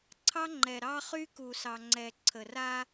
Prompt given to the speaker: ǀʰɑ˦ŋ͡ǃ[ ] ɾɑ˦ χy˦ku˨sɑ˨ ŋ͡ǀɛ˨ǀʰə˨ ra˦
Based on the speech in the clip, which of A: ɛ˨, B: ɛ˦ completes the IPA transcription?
A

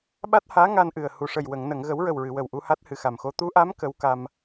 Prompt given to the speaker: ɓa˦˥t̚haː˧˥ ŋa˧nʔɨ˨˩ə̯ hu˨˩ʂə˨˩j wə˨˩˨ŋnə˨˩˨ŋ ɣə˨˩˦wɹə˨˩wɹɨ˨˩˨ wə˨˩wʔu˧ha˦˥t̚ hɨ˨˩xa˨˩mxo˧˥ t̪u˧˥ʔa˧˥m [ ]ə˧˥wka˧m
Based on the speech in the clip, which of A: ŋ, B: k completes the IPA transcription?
B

